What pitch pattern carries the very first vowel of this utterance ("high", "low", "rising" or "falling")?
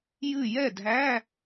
falling